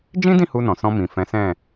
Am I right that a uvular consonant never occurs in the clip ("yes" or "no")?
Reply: yes